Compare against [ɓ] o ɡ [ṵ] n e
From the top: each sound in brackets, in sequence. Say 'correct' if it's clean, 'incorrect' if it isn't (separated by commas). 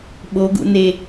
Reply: correct, correct